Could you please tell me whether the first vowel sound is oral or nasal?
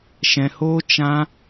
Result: nasal